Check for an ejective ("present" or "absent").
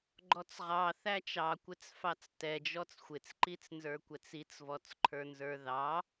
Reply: absent